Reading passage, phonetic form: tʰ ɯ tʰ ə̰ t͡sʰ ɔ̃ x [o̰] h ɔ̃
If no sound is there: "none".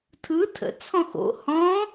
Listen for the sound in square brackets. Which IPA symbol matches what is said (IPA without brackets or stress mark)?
o̰